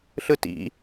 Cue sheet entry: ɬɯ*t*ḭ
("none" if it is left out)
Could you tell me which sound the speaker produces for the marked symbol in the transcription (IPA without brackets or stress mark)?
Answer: t